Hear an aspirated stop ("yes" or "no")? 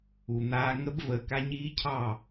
yes